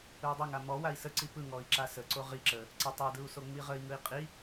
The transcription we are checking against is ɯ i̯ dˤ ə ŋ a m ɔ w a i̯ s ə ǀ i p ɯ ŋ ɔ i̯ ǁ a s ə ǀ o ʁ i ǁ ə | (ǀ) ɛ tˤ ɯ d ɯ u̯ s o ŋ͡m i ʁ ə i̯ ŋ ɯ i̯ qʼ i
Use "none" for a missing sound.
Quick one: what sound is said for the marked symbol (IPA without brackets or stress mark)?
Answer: ǀ